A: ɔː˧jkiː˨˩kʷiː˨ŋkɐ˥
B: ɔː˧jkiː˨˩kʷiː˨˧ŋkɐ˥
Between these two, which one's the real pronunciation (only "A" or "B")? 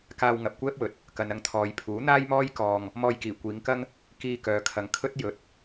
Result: B